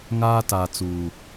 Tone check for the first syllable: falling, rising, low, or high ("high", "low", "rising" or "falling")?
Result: high